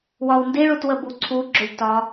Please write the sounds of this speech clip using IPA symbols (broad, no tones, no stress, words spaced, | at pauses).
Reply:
wɒwndiɭut wəbuǀʰuɡ͡ǁʏlʲ tɒ